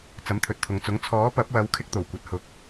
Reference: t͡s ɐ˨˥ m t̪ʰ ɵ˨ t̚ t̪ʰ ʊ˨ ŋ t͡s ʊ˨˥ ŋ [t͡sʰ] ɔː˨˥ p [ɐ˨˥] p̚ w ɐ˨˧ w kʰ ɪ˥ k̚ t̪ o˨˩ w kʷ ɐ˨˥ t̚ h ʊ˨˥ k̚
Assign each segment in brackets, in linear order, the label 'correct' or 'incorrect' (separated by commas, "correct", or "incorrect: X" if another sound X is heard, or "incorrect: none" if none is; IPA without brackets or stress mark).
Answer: correct, correct